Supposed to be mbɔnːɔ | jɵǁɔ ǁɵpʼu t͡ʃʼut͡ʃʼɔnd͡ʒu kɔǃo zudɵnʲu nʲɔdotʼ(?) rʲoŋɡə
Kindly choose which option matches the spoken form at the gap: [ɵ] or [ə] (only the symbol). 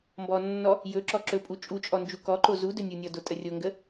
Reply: ə